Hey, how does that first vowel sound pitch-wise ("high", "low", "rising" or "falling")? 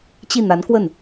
falling